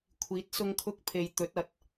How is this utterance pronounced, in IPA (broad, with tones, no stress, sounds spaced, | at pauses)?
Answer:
kʷʰ iː˨˥ t̚ s ʊ˧ ŋ kʰ ʊ˧ k̚ pʰ e˨ j t̪ ɵ˨˥ t̚ ɐ˨˥ t̚